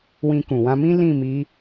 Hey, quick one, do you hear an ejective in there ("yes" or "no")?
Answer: no